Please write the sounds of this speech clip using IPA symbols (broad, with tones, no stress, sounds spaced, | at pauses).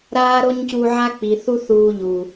ɾ aː˦ ɾ o˦ ɲ c u˧ ʕ a˦ k͡p i˨ θ u˦ θ uː˧ ʎ u˨